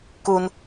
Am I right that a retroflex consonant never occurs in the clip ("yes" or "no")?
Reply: yes